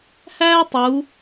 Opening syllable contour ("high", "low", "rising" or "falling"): high